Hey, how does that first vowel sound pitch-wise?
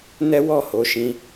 high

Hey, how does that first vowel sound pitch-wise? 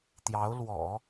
rising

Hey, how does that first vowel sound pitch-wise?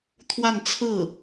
falling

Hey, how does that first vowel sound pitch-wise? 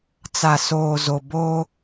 low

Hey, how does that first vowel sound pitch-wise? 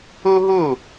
high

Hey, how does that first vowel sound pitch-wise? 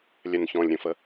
low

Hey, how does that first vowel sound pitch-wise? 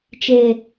low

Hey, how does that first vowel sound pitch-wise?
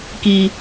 low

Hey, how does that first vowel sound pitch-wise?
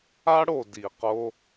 high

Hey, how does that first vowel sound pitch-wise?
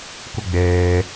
high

